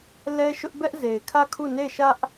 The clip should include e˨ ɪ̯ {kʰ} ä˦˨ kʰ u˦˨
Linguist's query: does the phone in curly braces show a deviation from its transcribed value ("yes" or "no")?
no